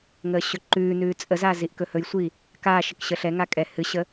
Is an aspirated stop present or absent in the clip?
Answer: absent